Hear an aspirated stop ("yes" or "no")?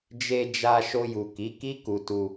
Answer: no